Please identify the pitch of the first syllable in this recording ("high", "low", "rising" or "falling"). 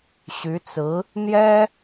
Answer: rising